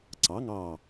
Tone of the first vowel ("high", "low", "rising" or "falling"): rising